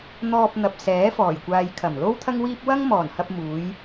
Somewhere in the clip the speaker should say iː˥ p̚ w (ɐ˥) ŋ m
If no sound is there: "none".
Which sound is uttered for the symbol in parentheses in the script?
ɐ˥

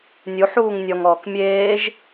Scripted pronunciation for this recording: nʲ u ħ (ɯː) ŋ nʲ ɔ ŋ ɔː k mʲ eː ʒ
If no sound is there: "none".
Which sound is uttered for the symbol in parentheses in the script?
uː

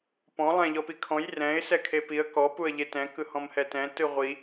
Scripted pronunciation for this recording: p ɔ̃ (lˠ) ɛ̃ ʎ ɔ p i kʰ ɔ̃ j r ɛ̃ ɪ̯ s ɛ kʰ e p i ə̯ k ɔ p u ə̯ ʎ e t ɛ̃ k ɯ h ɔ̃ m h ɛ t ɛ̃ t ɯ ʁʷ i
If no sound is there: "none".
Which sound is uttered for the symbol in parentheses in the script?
lˠ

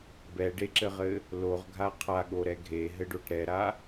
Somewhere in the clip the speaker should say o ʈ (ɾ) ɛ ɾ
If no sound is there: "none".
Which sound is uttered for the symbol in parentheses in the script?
ɾ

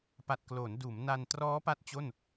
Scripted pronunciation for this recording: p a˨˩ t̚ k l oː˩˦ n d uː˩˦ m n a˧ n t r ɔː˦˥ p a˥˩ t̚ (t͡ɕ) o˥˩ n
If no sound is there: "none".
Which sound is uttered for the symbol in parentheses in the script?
t͡ɕ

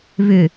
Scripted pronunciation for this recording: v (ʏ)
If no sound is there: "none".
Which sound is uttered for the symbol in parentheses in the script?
ʏ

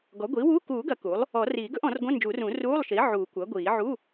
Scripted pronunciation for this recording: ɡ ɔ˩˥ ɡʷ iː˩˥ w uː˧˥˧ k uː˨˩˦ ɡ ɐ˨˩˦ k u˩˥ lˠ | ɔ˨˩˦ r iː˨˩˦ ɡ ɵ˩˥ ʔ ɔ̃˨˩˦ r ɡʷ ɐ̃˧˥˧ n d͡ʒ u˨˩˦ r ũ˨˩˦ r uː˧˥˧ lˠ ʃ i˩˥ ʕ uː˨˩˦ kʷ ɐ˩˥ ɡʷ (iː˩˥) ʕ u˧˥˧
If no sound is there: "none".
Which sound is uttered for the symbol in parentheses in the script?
iː˨˩˦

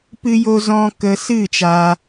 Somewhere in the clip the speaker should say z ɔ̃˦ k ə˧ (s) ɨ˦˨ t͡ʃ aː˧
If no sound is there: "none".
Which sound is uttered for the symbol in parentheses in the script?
s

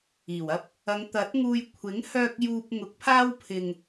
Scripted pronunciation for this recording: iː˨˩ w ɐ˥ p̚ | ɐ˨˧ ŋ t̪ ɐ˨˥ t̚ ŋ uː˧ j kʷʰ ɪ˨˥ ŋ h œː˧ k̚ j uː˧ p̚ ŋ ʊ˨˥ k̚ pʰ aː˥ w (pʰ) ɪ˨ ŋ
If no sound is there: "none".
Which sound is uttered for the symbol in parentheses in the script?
pʰ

